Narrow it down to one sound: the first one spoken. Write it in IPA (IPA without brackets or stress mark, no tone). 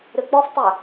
ɾ